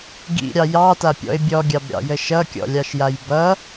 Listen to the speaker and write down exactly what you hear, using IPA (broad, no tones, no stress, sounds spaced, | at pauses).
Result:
ɡ ḭ ɾʲ ɑ j ɑ t a pʲ ɔ̰ ɪ̯ bʲ ɔ ɡʲ ɑ b ɾʲ ɑ̰ j ə ʃ ʌ kʲ ɔ̰ lʲ ɑ ʃ j a j b ʌ